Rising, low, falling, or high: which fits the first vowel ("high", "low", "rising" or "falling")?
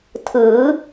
rising